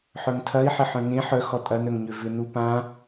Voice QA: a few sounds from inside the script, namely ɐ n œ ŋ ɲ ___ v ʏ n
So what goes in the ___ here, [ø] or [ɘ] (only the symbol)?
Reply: ø